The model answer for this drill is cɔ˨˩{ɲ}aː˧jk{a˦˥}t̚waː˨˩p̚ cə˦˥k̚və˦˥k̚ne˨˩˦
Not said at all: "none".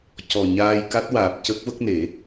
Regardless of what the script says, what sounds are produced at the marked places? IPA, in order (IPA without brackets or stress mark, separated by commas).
ɲ, a˦˥